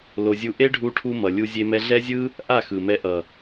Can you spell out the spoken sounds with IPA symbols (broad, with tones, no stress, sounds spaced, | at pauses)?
l o˧ zʲ u˦ ʔ e˦ ɖʱ u˧ ʈʰ u˧ m ʌ˨ lʲ u˧ zʲ e˧ m ɛ˧ ɮ ɛ˦ zʲ ɯ˦ | ʔ a˦˨ x ɯ˨ m ɛ˧ ʔ ʌ˨